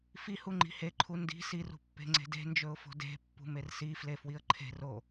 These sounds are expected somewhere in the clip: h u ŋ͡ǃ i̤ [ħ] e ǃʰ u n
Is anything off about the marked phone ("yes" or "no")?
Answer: yes